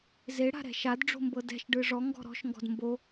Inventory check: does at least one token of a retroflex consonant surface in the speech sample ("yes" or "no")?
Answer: yes